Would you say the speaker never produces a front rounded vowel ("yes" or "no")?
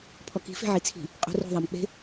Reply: yes